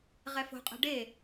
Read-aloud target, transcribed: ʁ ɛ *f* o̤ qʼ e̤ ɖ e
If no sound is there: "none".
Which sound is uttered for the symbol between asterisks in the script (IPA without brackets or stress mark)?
f